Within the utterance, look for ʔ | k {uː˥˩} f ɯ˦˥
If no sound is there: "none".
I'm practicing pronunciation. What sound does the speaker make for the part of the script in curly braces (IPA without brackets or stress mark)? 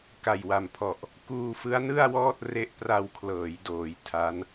uː˧